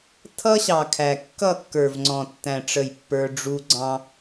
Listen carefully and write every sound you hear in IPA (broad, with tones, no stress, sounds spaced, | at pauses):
tʰ ʌ˦ ɕ ɑ˨ kʰ æ˨ kː ʌ˦˨ kː ə˞˨ v ŋ͡ǀ ɔ̃˨ tː æ̃˨ ʈ͡ʂ ə˦˨ j pː ə˞˦ ɖ͡ʐ u˦ ɡ͡ǀ ɑ̃˦